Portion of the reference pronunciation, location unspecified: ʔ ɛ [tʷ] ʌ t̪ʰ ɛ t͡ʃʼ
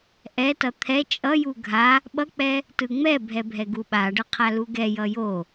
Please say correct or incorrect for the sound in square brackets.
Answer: incorrect